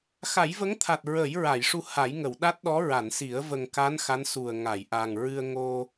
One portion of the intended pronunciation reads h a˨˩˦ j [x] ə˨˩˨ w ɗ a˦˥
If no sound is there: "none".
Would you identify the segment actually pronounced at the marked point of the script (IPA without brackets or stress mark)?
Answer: ŋ